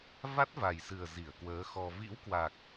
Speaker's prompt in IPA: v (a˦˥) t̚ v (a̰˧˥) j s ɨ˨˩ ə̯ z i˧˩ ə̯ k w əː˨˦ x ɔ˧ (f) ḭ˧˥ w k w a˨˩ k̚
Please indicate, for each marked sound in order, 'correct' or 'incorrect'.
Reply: correct, incorrect, incorrect

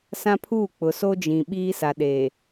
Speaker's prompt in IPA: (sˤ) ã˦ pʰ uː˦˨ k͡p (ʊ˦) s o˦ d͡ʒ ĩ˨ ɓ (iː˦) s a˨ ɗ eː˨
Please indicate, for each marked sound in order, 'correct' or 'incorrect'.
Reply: incorrect, incorrect, correct

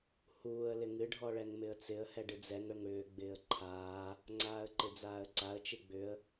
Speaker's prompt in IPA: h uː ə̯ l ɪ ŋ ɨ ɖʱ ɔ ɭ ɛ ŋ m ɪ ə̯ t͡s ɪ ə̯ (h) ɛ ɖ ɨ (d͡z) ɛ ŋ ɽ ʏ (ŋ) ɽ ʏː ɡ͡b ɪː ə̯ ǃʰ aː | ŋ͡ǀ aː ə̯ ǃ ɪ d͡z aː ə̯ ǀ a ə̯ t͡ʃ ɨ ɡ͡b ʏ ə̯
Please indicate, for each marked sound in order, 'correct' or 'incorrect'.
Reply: correct, correct, correct

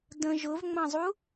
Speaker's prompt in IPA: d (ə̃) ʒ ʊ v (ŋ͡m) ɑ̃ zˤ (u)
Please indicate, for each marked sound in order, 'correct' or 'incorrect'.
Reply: correct, correct, correct

